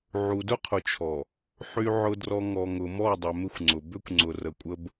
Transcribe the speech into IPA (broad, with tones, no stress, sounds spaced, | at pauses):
ʕ u˨ d ʊ˦ qʰ ʊ˨ t͡ʃʰ ɔ˨ | ħ y˨ ʕ ʊ˨ d r ɔ˨ ŋ ɔ˨ ŋ ʊ˨ m ɔ˦˨ dˤ ʏ˨ m ɪ˦ xʷ ŋ͡ǀ ʊ˨ b ʏ˦ kʷ ŋ͡ǀ ʊ˨ r ə˨ kʷʼ ə˦ b